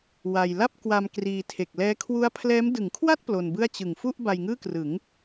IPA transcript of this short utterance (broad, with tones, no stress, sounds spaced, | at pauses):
w a˧ j l a˥˩ p̚ k w a˧ m k r iː˧ tʰ e˨˩ k̚ l ɛː˦˥ kʰ w u˦˥ a̯ pʰ l ɛː˦˥ m d ɯ˩˦ ŋ kʰ w a˥˩ t̚ p l o˧ n b ɯ˥˩ a̯ t͡ɕ ɯ˨˩ ŋ f u˥˩ ʔ b a˧ j ŋ ɯː˥˩ k r ɯ˩˦ ŋ